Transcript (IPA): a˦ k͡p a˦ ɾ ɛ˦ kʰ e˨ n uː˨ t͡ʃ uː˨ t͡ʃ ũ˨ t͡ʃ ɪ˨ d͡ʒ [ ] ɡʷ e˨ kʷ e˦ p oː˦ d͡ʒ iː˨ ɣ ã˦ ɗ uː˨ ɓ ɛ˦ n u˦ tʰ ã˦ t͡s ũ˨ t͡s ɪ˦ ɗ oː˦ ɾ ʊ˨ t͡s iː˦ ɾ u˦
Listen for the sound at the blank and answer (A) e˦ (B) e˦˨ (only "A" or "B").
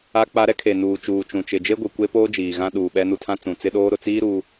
A